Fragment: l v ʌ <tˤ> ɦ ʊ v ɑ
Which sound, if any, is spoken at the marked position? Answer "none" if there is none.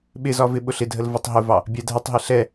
tˤ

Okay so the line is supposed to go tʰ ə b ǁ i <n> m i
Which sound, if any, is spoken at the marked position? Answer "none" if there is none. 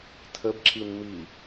n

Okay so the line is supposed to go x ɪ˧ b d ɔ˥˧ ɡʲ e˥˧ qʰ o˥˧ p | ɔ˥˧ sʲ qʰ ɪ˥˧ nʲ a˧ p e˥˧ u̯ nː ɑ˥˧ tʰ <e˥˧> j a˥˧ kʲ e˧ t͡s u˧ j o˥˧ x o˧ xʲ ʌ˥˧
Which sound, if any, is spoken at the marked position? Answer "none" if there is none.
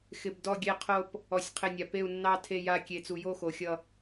e˥˧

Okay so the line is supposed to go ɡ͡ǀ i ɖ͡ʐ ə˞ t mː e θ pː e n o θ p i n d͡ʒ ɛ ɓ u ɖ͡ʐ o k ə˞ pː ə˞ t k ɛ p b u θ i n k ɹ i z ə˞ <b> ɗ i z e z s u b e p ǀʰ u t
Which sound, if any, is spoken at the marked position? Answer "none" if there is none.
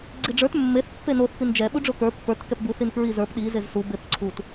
p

